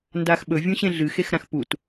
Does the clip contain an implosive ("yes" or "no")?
yes